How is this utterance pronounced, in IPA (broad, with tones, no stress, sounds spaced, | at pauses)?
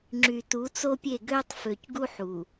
ŋ͡ǁ y˨ t u˨˦ t͡s o˦ pʲ e˦˨ ɡ øː˦ tˤ f ø˨ c ɡ u˦ ħ u˨